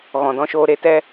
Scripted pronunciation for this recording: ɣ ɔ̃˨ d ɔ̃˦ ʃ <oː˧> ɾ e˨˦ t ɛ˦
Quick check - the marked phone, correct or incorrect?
correct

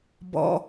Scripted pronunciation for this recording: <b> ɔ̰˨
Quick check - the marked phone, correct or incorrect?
correct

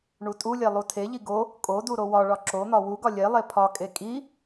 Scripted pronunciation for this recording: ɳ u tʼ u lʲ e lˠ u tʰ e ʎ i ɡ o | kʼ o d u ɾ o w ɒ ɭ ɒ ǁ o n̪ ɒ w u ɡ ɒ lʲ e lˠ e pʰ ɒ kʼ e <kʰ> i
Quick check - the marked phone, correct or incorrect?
incorrect: kʼ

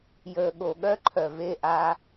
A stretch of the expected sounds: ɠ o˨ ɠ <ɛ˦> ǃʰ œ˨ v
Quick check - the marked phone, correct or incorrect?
incorrect: œ˦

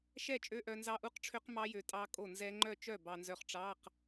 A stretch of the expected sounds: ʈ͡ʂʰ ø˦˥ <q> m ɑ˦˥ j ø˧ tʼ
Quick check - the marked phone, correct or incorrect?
correct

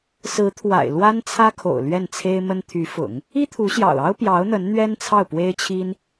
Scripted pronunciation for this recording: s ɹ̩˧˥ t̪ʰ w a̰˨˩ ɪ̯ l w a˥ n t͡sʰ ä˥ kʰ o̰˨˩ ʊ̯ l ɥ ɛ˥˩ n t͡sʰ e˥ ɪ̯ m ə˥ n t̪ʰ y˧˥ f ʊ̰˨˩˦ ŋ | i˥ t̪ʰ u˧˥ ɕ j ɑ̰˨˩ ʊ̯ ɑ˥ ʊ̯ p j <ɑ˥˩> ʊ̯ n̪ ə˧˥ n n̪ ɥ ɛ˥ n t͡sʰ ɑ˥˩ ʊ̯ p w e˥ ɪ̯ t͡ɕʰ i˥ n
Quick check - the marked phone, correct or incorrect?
incorrect: ɑ˧˥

